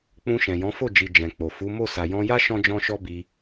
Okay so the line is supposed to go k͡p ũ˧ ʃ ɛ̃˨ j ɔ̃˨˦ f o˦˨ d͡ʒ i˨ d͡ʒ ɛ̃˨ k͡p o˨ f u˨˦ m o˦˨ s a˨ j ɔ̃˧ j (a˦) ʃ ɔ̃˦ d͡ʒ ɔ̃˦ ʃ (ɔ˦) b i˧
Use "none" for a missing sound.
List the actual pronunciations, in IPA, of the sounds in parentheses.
a˦, ɔ˦

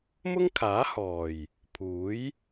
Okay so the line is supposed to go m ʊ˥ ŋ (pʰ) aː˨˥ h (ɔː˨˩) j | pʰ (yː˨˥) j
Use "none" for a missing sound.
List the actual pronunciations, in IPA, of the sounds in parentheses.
kʰ, ɔː˨˩, uː˨˥

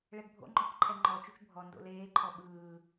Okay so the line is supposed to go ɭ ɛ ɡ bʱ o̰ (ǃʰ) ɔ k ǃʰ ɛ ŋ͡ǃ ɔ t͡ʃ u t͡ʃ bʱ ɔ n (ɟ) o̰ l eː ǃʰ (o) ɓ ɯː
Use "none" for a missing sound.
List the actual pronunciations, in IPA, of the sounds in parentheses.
ŋ͡ǃ, d, ɔ

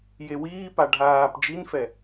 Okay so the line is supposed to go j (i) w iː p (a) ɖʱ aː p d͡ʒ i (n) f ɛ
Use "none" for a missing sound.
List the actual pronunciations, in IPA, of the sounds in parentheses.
e, a, n

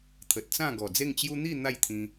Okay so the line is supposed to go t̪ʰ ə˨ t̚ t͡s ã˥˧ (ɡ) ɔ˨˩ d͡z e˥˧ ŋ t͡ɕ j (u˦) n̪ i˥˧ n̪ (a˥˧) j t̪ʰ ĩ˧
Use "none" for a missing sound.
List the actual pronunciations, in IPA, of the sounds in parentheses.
ɡ, u˦, a˥˧

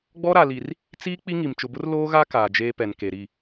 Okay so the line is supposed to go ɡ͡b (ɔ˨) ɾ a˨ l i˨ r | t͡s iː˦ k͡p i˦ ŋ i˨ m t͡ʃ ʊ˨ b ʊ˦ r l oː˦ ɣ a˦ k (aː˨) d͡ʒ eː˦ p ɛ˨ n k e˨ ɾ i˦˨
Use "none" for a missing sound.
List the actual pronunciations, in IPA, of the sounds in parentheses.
ɔ˦, aː˨

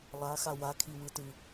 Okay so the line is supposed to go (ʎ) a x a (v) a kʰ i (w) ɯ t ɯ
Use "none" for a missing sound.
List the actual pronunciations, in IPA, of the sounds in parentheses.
lˠ, w, w

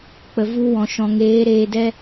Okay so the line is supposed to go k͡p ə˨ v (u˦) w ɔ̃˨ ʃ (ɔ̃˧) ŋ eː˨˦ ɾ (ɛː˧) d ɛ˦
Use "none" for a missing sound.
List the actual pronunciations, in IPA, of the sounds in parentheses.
u˧, ɔ̃˨, eː˧

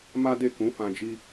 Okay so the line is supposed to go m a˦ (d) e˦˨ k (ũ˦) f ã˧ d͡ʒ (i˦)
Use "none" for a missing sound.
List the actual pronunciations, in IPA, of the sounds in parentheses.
d, ũ˨˦, i˦

